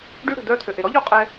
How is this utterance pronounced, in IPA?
ɖ y˦ ɽ ə̤˨ d̪ œ˦ t̪ʰ ø˨ ʔ e˨ ɾ ɔ˦ ʎ o˦ qʼ ɛ˦

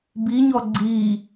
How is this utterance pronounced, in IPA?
b i ɲ ɔ ɡ͡ǀ iː

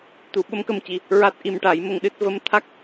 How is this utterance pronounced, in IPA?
t̪ u˨˩˦ ɓ ə˧˥ m k ə˧ m c i˨˩ | ɹ a˦˥ t̚ ʔ i˧ m ʈ a˨˩˦ j m ə˧ ŋ ɗ ɨ˦˥ t̚ v ə˧ m t̪ʰ a˦˥ k̚

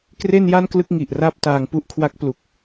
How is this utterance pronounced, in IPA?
k r e˥˩ n j a˥˩ n k l ɯ˥˩ k̚ ŋ i˨˩ ʔ r a˥˩ p̚ t aː˧ ŋ p u˥˩ ʔ kʰ w a˦˥ k̚ p l u˨˩ k̚

